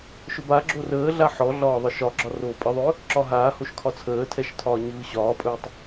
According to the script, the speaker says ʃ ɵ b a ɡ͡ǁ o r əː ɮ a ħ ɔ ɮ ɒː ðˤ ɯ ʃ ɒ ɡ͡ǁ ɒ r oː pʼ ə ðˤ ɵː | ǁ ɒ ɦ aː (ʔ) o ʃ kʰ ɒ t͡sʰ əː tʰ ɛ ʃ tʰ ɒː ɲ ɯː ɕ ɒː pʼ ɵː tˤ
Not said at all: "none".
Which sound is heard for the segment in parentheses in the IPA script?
h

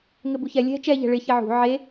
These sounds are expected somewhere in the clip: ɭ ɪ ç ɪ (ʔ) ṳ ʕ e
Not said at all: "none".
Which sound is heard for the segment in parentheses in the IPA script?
ʕ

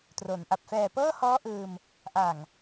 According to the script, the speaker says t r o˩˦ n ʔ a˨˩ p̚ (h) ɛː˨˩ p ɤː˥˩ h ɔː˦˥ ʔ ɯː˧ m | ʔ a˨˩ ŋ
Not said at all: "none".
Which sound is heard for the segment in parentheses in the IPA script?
f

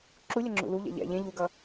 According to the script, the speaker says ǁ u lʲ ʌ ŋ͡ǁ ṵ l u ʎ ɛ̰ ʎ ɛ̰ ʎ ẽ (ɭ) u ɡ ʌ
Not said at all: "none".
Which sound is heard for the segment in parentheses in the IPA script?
ʎ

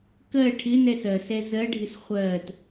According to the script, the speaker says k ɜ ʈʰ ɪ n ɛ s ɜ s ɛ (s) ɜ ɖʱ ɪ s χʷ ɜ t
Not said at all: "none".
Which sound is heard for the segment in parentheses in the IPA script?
z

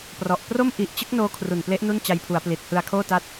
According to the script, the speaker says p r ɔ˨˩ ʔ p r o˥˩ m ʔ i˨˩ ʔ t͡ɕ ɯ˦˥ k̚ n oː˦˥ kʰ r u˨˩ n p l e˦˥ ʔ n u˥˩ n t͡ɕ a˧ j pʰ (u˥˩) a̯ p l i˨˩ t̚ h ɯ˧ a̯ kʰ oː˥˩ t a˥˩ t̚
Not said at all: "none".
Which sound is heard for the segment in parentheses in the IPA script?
u˩˦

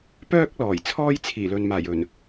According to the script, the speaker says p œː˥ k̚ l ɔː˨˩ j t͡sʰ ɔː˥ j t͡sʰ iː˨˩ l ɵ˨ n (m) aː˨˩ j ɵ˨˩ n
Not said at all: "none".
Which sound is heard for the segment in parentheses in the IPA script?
m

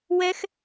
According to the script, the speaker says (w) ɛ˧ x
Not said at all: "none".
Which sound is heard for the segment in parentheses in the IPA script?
w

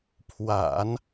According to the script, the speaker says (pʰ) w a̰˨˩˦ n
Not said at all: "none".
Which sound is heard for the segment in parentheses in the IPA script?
pʰ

